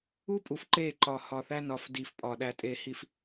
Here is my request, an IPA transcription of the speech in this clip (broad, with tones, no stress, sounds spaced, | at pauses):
u˦ pʼ u˨ f ǃ e˦˨ ǃ ɒ˨ h ɒ˨ θ æ˦ n ɒ˨ f d i˨ f pʼ ɒ˨ ɗ æ˨ tʼ e˨ h i˨ f